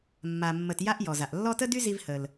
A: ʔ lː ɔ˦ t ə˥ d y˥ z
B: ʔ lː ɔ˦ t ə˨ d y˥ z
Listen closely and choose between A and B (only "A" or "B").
A